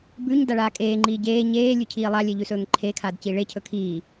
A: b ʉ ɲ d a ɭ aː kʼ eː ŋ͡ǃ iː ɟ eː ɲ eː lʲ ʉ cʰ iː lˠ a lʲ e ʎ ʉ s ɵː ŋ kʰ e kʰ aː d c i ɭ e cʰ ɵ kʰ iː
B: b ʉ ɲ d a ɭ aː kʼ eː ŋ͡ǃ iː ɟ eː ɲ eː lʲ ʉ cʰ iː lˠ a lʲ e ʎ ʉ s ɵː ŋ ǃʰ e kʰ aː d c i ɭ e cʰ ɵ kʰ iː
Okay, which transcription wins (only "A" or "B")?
B